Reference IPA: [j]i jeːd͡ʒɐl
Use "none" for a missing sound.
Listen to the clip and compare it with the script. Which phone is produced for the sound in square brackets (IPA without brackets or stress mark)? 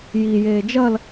j